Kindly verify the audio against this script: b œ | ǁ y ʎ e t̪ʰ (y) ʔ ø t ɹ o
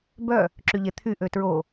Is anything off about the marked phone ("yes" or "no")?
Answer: no